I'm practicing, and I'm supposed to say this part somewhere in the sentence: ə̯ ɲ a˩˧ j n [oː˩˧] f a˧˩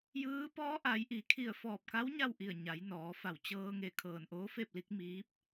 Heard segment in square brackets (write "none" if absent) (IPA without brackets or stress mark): ɔː˩˧